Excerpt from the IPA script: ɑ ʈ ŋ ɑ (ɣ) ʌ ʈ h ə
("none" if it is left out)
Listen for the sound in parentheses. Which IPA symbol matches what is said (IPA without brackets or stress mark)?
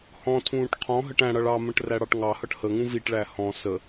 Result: h